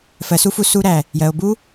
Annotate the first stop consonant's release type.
plain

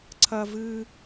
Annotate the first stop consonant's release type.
click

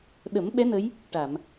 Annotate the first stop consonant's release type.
implosive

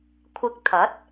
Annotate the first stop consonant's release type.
aspirated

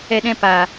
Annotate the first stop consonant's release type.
implosive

